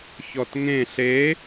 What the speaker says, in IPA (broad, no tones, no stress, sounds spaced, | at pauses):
ç ɔ t ŋ ẽ ɬ e